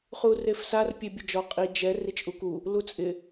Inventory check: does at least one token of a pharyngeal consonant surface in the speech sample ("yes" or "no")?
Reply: no